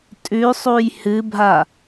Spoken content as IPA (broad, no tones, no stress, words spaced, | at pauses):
tʼʉsˤuj hɨbʱa